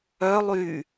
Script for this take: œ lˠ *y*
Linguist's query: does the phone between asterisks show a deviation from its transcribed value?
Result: no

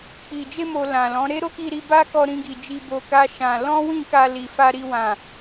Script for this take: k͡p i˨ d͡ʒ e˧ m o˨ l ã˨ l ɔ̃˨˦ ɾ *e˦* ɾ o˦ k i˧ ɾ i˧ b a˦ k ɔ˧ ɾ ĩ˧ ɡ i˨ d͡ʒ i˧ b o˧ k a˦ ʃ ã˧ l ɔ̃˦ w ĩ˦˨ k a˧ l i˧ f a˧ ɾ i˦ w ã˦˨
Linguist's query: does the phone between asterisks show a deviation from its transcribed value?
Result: no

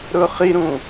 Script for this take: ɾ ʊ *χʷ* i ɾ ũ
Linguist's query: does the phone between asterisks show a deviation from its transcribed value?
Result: yes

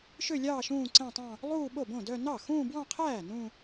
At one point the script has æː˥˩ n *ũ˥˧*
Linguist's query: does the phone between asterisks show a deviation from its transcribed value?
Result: no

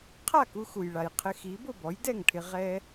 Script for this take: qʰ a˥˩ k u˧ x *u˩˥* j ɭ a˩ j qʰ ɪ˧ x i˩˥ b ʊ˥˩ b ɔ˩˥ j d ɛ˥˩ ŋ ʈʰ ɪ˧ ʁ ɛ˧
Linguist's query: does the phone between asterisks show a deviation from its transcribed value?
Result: yes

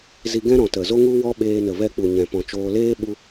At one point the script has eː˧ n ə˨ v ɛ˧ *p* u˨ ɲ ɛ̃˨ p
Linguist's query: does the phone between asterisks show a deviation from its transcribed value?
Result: yes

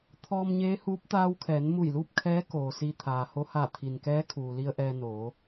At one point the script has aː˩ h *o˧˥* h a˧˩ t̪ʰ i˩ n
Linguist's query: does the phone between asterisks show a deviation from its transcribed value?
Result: no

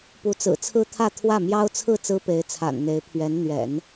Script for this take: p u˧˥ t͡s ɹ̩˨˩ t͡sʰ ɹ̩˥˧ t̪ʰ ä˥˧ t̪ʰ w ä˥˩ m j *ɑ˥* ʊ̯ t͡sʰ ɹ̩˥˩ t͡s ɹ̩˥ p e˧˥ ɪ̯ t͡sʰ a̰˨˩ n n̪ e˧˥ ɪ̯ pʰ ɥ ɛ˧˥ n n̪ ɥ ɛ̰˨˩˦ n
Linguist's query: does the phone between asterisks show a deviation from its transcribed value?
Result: no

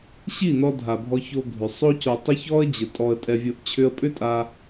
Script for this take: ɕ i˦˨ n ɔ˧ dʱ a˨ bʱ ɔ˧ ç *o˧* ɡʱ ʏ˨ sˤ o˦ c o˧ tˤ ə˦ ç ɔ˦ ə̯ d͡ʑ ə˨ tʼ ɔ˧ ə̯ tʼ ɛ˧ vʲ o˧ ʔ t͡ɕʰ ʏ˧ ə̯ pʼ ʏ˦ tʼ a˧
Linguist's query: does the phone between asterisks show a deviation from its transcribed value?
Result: no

